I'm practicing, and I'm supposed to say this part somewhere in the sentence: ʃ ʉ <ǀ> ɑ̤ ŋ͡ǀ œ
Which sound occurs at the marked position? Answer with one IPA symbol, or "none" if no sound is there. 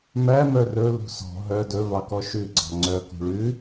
ɡ͡ǀ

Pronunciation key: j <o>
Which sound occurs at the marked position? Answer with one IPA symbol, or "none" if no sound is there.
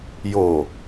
o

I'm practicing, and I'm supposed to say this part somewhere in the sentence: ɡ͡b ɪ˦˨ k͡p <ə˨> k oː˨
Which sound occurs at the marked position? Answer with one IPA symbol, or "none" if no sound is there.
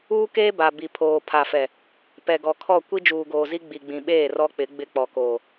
ɔ˨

